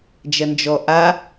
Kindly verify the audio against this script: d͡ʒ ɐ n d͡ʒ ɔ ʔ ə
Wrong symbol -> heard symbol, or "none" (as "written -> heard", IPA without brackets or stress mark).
ə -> a